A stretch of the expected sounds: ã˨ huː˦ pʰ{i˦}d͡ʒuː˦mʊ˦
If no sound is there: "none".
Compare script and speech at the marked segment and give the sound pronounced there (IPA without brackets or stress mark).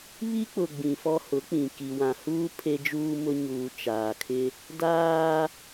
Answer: e˦